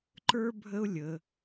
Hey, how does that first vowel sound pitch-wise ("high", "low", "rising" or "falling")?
high